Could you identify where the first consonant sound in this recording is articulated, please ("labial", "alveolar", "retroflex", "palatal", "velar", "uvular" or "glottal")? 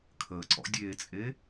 velar